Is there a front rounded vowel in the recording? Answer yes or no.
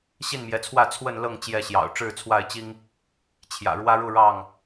no